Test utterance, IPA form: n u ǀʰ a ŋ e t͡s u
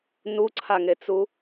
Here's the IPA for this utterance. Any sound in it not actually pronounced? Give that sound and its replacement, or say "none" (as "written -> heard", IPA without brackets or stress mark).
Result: none